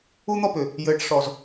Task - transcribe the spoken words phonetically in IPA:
u˦ n̪ ɔ˦ p ʏ˨ | j ɘː˨ ʈ ʂ ɔ˨ z

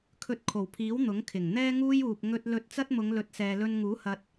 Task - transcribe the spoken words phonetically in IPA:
kʰ ɵ˧ t̚ kʰ o˨˩ w pʰ iː˨˥ w n̪ ʊ˨˥ ŋ kʰ ɪ˨˩ ŋ n̪ ɛː˥ ŋ uː˥ j uː˨ p̚ ŋ ɵ˧ t̚ l ɵ˧ t̚ t͡s ɐ˥ t̚ m ʊ˨˧ ŋ l ɵ˨˥ t̚ s ɛː˨ l ɵ˧ n ŋ uː˨˥ h ɐ˨ t̚

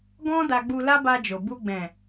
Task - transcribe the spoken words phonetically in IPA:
ɡ ɔ̃˦ d a˧ ɡ͡b u˧ l a˦ b a˧ d͡ʒ o˨ b u˧ ɡ͡b ɛ̃˨

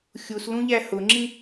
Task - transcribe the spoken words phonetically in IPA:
xʲ u s l ũ ʎ æ h ʊ ŋ͡ǁ ĩ

